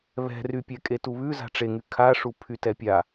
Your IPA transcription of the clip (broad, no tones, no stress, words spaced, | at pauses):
βɛ̤rypʲɛ kʼetuβʉ za̤ʈ͡ʂeŋy kʰaʂu pʰytɛpʲa